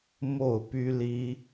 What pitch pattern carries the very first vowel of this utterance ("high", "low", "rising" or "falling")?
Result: falling